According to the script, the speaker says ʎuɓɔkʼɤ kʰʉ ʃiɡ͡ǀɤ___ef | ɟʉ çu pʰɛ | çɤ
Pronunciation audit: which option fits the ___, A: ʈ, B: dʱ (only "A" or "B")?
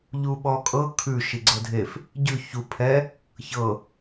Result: B